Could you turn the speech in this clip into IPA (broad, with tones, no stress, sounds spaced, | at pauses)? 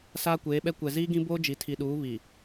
s aː˦ kʷ eː˨˦ ɓ ɛ˦ kʷ ɛ˨ z iː˦ ɡ ĩ˦ b oː˦ d͡ʒ i˨ tʰ i˨ ɗ uː˨˦ β i˨